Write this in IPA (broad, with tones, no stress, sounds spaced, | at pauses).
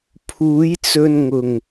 pʰ uː˨˥ j t͡s ɵ˧ n ŋ ʊ˨˩ ŋ